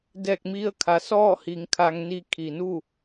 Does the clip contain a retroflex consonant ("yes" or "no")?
no